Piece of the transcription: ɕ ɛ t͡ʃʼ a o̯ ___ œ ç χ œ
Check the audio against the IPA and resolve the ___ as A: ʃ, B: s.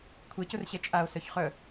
B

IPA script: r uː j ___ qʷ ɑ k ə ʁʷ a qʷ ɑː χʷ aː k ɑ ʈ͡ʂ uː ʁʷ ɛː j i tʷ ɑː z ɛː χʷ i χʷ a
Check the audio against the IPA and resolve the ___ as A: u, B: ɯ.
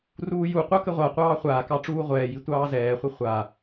A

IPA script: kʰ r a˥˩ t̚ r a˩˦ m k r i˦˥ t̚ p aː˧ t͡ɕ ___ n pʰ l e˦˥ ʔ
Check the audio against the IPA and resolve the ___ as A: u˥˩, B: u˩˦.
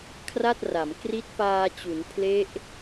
B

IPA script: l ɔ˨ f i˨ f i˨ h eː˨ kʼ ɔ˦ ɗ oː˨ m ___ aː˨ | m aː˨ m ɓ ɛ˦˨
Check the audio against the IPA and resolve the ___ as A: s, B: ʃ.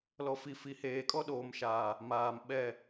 B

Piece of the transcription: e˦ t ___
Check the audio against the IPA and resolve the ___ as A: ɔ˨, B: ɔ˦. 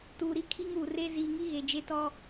B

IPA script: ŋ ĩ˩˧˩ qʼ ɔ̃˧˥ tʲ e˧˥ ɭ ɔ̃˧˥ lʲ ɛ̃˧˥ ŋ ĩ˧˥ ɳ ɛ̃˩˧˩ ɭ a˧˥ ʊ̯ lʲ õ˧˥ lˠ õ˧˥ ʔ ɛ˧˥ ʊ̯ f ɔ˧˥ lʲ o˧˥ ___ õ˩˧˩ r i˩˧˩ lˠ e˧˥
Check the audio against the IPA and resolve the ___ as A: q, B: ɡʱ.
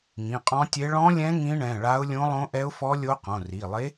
A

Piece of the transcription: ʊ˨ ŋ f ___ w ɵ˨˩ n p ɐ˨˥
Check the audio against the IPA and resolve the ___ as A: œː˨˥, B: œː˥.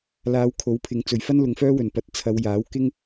B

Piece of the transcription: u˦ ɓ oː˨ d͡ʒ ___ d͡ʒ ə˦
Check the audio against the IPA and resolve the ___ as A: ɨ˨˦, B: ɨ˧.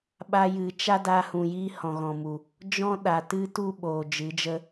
A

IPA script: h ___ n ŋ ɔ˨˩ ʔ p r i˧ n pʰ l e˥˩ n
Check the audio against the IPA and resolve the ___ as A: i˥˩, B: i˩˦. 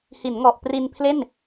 B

